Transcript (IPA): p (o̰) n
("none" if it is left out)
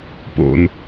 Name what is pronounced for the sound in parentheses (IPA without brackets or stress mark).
o̰